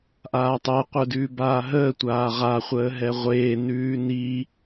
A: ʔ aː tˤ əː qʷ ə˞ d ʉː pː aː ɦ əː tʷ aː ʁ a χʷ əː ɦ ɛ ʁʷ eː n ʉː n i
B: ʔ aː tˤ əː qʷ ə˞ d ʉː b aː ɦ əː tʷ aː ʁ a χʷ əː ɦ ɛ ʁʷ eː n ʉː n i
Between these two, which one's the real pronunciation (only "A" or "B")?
B